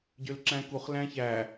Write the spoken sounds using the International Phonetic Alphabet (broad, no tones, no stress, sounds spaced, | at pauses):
ɟ ø l ǁ æ̃ k u χ l æ̃ ç æ